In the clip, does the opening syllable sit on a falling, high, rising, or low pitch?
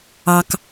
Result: high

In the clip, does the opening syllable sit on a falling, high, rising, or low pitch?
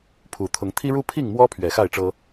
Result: low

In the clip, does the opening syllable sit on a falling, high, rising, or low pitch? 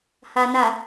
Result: low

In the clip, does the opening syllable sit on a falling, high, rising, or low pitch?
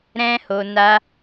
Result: high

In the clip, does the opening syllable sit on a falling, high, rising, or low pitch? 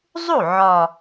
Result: falling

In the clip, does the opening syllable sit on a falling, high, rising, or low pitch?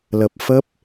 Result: low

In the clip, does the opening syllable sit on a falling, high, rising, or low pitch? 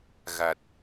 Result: low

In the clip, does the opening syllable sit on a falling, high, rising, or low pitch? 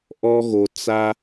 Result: high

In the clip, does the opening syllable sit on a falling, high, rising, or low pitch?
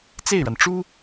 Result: falling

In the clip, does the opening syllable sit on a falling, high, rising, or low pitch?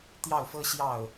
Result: falling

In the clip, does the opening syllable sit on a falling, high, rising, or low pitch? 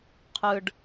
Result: low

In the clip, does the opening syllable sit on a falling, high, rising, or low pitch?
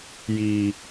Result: high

